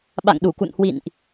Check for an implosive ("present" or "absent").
present